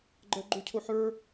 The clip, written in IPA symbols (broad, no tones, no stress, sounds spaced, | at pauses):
ɡ͡ǃ ɜ ɡ͡ǃ u cʰ o ħ ə˞